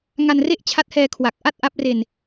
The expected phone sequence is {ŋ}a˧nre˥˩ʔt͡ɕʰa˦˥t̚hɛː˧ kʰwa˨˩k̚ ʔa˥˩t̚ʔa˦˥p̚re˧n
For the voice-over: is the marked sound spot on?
yes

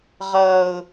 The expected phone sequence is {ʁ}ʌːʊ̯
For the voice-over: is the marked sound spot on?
yes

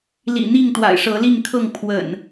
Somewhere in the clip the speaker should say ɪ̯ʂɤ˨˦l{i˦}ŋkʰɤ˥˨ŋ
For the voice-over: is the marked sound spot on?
no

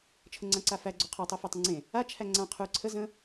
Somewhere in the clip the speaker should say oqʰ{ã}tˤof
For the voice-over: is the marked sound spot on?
no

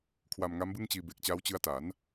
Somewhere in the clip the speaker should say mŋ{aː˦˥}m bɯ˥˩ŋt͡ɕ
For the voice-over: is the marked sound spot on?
no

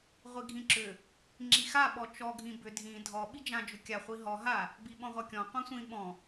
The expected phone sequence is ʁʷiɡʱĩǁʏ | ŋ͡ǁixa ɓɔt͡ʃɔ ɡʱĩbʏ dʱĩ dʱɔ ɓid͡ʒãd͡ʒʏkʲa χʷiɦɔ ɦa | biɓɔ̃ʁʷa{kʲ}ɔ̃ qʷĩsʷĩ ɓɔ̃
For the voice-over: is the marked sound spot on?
yes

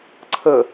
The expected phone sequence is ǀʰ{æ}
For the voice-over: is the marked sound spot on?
no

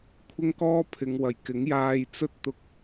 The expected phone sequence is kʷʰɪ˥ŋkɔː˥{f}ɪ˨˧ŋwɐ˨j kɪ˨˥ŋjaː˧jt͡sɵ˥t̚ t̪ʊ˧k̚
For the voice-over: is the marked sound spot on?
no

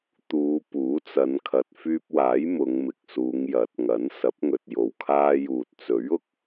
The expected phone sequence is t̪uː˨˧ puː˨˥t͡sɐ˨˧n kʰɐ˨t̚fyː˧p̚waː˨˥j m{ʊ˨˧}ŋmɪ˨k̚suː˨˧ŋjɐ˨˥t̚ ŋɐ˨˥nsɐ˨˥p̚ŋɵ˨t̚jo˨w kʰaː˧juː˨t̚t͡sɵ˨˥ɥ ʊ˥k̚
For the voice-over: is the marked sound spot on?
yes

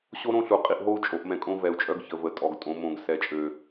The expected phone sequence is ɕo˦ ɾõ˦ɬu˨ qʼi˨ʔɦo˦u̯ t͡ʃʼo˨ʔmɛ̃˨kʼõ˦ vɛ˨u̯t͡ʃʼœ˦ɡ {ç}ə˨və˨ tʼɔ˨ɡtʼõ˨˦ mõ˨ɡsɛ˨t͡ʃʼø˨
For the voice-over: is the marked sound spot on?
yes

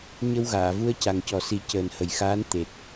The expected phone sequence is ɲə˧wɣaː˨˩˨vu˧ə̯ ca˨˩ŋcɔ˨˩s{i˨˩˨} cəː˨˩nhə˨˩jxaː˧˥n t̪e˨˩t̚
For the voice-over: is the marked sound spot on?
no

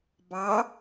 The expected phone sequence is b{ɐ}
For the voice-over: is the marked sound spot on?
no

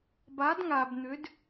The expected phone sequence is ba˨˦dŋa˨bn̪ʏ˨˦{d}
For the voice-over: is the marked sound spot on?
yes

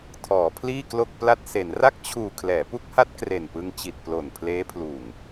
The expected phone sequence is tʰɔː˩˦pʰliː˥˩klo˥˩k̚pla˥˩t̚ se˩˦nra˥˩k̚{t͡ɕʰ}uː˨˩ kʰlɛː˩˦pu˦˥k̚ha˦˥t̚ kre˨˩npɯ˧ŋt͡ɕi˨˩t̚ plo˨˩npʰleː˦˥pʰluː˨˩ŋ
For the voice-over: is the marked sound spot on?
yes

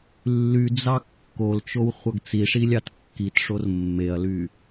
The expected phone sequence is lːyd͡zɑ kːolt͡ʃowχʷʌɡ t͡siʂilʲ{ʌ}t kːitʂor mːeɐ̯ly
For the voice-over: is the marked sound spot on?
no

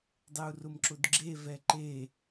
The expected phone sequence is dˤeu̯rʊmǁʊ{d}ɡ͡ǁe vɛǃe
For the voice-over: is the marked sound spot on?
yes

